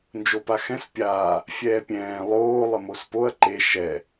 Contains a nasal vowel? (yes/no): yes